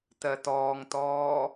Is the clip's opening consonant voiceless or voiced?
voiceless